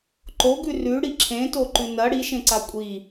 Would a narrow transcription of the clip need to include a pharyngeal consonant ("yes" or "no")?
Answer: no